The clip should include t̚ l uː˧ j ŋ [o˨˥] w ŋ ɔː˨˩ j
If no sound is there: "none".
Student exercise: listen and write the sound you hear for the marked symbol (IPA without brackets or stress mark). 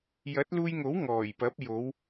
o˨˥